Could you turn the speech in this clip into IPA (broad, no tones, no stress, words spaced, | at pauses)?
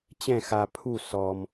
t͡ɕɛ̃ xa pʰu sɔm